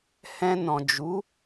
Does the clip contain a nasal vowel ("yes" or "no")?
yes